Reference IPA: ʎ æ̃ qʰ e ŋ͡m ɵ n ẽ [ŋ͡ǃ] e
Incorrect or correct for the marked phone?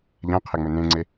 incorrect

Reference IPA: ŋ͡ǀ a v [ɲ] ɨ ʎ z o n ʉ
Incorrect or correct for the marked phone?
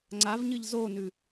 correct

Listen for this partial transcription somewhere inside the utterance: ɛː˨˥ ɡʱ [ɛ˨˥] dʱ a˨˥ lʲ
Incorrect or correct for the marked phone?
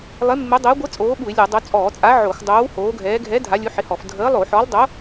correct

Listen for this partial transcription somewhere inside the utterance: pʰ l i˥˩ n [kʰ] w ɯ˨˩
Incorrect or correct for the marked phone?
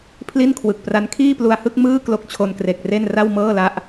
correct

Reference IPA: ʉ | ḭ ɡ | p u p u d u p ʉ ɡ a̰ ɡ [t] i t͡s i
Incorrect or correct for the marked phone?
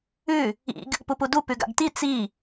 correct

